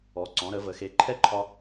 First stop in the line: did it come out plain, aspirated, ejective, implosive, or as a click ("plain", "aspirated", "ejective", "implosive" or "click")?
click